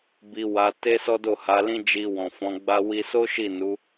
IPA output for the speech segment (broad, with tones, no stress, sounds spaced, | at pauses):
b i˧ w a˧ t e˦ s ɔ˦ d o˦˨ h a˨˦ l ĩ˦ d͡ʒ i˧ w ɔ̃˨ f ɔ̃˨˦ ɡ͡b a˦ w i˧ s o˦ ʃ i˦˨ n u˨˦